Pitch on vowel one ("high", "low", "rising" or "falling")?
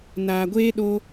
low